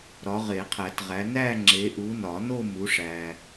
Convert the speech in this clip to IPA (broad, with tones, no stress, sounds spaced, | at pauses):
ɾ ɒ˨˦ ʁ e˨˩˦ qʰ æ˨˩˦ t ʁ æ˨˦ n æ˥˧ ŋ͡ǁ e˨˦ ʔ u˨˦ n ɒ˨˩˦ n o˥˧ m u˨˦ ʂ æ˨